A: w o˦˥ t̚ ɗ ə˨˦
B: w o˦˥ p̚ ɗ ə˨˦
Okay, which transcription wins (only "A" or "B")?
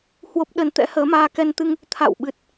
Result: B